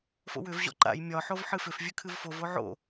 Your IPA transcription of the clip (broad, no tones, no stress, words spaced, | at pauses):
fo̰wʏv ʑɔ̰ǃa̰j mʲɒ ħovħɨfʏf vʲʉkʰɨvfov oʕo̰